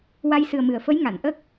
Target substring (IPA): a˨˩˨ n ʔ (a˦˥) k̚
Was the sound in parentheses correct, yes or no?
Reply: no